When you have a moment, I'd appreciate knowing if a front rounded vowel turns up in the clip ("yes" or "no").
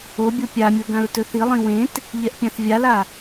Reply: no